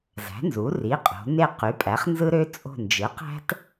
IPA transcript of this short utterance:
z æ̤˩˥ n z u˩˥ r i˩˧˩ qʼ o̤˩˧ n e˦˨ q y˩˥ pʼ æ˩˥ χ n z ɯ˥ ɾ ø˥ t͡sʼ o̤˦˨ n d͡ʒ ɯ˩˥ q æ̤˥ t

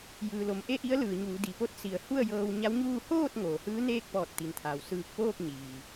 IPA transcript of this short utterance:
j ɯː˩ l o˩ m ʔ e˥˨ ʔ i˧˥ ə̯ l ɯː˩ ɲ uː˩˧ d i˩ p o˧˥ t̚ s i˩˧ ə̯ h u˥˨ ə̯ j ɤː˧ w ɲ a˧˥ w ɲ uː˥˨ h oː˥˨ t̚ ŋ oː˩ h ɯː˧˥ n eː˥˨ k̚ p ɔː˧˩ t̚ t̪ i˩ n t̪ʰ aː˩ w s ɯː˧˩ k̚ p oː˥˨ k̚ ɲ iː˩

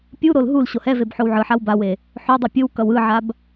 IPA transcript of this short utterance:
pʲ u ɾ o l ɦ u l ɕ o h ɛ v e b ħ o w ʕ ɯ ħ a w b a w e | ħ o dˤ ɯ pʲ ɯ w k ʌ w ɯ ʕ a b

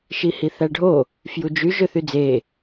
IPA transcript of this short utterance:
ʃ i h i θ æ ɖʱ o | f j u d͡ʒ y ʒ ø θ y d͡z e

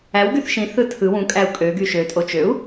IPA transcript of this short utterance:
æ w ɡ y θ ʃ ĩ θ ɯ tʰ ɯ w ũ kʼ æ u̯ kʼ ø ɡ y ʃ ø tʼ o t͡ʃ ø u̯

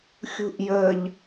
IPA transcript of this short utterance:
xʲ ṳ ʔ j ə ʎ

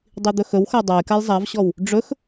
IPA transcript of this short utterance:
dˤ i d̪ ɵ x ɵ w x a dˤ a j k a j zˤ a v ɕ ɔ w | ɖ͡ʐ ɵ x

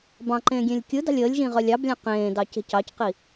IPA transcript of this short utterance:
b ɑ̃ ǃ ẽː ɡʲ ẽ lʲ kʲ ɯ d ɑ̤ lʲ əː lʲ ʒ ĩ ʁ œ lʲ ɑ b lʲ ɑ̃ q ẽː d ɑ c e̤ c ɑ c q i

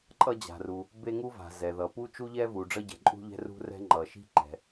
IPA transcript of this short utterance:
ǃʼ ʌ˥ d͡ʑ a̤˩ r u˩ | b e˥ ŋ u˥ v a̤˩ z ɛ˩ ð ʌ˩ p u˥ t͡ʃ u˥ ʎ ɛ˥ v u˩ ɖ͡ʐ ʌ˥ ɟ ɛ̤˩ ǃʼ ṳ˥ ʎ ɛ̤˥ r ṳ˥ r ɛ̤˥ ŋ͡ǃ ʌ˩ ʃ i̤˥ ǃ ɛ̤˩

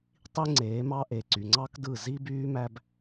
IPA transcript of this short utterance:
tˤ i˦ ŋ͡ǀ eː˨˦ m ɑ˦ ʔ e˨ ǀ y˨ ŋ͡ǀ ɑ˦ k d ɯ˦˨ z i˦ b yː˦ m æ˦ b

